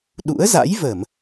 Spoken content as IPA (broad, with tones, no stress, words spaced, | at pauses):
ɗṵ˧˥ə̯za̰˧˥jvə˧˩˨m